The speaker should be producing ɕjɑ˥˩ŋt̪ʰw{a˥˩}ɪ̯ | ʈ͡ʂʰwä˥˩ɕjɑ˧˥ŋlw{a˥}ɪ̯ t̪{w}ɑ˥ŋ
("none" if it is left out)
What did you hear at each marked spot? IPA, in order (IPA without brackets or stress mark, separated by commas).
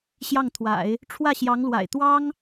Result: a̰˨˩˦, a̰˨˩, w